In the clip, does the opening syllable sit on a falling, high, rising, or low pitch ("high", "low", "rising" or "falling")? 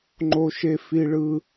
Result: low